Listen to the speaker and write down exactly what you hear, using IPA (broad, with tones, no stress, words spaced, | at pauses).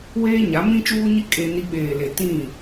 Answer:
weː˦ɲa˨˦mĩ˦ t͡ʃuː˦ɲi˦ kʼe˦ni˦ ɓeː˨le˨ tĩ˦˨